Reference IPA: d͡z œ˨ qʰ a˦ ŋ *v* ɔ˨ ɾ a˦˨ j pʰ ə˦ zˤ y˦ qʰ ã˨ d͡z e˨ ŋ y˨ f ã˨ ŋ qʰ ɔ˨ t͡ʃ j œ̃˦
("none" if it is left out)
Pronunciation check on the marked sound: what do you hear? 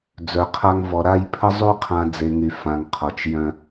v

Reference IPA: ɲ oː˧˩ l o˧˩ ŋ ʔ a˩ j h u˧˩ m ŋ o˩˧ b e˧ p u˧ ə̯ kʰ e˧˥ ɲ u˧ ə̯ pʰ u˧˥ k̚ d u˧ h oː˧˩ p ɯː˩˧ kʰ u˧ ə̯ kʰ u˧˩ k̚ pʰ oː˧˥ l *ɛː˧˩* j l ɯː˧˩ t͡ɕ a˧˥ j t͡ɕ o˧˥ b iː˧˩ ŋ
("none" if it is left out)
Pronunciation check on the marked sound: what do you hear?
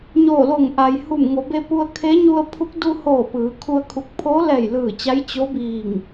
ɛː˧˩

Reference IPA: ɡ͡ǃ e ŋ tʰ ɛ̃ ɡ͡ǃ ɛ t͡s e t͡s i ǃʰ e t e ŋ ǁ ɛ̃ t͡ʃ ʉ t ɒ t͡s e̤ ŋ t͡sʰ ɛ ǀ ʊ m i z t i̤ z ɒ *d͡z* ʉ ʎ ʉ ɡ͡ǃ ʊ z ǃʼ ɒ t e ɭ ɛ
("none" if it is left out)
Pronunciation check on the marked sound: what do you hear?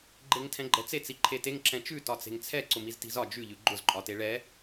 d͡ʒ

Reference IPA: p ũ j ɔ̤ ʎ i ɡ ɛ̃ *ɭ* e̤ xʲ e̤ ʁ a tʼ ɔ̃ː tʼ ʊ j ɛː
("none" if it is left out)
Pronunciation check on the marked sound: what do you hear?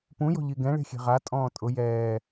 ɭ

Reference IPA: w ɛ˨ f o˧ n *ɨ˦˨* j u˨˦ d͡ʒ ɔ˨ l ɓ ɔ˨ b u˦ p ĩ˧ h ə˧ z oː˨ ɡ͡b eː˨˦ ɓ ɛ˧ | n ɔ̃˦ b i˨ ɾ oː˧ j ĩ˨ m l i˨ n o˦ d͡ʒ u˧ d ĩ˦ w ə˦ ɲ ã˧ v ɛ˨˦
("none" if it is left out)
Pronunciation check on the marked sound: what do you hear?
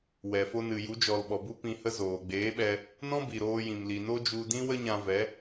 ɨ˨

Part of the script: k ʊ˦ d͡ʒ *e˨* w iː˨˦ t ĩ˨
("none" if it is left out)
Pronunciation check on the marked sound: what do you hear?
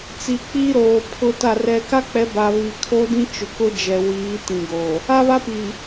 ɛ˨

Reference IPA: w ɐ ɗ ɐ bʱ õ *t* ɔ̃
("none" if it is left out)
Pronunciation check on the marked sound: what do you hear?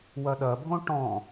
ʈ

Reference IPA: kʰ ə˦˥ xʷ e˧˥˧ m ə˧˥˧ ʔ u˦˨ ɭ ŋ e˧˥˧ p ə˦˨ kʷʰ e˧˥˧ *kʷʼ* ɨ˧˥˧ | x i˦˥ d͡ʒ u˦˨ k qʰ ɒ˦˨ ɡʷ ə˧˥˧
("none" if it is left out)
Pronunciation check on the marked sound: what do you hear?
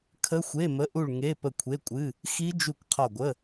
kʷʼ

